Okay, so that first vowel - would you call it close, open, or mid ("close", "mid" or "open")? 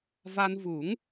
open